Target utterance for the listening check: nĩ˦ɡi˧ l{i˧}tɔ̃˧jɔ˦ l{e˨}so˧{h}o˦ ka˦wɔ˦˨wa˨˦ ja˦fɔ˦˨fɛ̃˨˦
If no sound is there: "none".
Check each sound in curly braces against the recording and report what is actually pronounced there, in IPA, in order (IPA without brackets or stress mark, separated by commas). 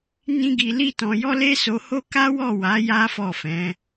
i˦, e˦, h